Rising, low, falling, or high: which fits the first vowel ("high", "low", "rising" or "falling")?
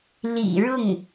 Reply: low